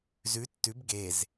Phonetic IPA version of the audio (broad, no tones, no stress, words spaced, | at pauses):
zʉ tːʉb ɡez